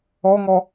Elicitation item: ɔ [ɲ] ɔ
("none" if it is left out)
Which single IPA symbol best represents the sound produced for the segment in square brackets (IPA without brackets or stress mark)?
ŋ